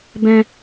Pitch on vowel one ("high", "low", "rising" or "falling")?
high